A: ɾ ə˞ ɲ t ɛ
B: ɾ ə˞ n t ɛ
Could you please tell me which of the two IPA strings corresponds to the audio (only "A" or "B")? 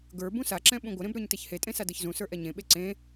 A